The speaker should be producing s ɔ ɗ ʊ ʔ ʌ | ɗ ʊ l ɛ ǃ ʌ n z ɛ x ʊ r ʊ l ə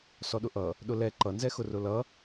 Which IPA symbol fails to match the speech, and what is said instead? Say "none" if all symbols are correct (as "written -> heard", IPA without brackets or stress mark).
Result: ə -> ʌ